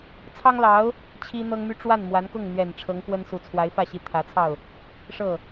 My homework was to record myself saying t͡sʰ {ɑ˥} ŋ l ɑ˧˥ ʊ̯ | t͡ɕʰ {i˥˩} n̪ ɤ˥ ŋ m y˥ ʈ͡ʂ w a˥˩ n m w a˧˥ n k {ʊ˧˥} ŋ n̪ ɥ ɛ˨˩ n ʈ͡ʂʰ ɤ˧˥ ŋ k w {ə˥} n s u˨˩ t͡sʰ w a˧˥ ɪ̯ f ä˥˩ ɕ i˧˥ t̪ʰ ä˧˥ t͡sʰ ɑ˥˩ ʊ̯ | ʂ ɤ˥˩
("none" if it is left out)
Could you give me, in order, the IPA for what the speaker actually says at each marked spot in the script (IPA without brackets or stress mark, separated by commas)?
ɑ˥, i˥, ʊ˥˩, ə˥